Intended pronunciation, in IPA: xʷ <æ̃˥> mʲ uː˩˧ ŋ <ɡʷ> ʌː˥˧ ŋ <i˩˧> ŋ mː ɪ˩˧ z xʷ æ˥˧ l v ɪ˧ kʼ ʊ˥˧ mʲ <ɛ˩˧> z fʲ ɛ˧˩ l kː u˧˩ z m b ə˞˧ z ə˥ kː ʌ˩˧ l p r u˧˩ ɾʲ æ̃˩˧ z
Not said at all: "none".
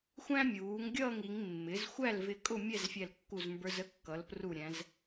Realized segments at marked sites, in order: æ̃˥, ɡʲ, i˩˧, ɛ˥˧

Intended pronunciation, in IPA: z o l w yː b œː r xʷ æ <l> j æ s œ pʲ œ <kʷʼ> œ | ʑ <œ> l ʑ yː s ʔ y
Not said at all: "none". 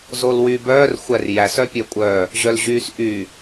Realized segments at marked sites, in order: r, kʷʼ, œ

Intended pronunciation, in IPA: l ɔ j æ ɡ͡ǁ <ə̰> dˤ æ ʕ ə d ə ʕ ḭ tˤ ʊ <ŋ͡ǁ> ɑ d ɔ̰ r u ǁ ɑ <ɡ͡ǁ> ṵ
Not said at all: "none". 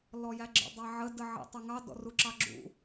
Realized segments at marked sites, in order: ə̰, ŋ, ɡ͡ǁ

